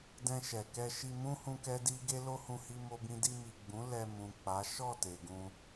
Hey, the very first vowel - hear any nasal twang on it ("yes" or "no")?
yes